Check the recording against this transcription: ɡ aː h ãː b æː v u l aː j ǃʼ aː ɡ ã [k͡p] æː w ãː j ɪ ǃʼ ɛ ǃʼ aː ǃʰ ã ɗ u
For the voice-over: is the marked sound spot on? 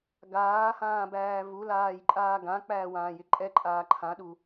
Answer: yes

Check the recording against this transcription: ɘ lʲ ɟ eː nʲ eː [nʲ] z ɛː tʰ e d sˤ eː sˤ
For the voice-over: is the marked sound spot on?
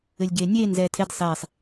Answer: no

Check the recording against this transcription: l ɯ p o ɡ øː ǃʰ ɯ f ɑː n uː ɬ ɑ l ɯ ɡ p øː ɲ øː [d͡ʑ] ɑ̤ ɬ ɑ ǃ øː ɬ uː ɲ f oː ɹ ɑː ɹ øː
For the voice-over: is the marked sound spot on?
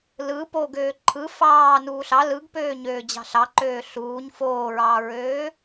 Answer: yes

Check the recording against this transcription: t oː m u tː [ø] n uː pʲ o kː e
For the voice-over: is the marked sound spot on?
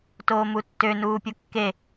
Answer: yes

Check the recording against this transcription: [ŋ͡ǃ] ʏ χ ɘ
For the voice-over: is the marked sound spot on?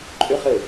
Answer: no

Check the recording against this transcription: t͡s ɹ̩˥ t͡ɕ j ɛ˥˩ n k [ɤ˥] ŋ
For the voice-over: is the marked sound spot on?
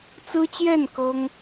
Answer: yes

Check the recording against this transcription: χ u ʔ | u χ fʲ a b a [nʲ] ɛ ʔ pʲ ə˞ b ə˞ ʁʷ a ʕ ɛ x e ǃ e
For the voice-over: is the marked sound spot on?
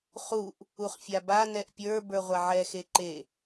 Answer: no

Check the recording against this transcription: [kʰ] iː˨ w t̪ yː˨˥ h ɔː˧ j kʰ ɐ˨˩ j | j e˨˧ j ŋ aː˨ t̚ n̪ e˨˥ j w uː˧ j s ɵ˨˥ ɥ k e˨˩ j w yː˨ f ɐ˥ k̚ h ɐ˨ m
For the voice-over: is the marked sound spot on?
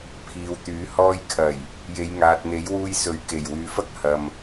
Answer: no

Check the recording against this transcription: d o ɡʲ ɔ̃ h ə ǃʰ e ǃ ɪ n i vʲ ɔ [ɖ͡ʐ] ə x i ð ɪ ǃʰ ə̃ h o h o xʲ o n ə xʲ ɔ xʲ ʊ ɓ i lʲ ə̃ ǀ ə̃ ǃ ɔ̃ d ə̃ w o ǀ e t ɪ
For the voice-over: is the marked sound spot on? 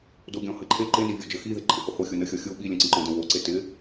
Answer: no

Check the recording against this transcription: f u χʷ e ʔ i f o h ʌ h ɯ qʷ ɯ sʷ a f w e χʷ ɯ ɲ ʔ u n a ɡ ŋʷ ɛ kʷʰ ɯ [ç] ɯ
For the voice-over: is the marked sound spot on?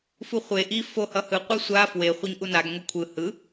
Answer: no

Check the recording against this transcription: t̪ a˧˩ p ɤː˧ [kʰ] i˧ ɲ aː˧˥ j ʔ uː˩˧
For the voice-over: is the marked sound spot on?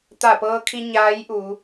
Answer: yes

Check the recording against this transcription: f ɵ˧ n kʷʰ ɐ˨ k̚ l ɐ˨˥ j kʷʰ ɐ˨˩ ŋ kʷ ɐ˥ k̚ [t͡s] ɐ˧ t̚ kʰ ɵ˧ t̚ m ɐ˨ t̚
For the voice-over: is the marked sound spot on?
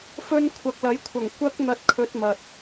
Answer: no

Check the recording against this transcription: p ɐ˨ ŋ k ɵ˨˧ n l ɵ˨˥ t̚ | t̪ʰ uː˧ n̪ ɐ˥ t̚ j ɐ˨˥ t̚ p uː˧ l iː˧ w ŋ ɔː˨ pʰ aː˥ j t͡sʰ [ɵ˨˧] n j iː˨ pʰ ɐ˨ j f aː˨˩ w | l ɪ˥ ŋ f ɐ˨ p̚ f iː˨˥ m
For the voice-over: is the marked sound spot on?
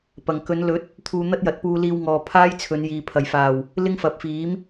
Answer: yes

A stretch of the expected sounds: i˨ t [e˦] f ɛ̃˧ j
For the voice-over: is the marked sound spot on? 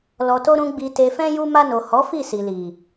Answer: no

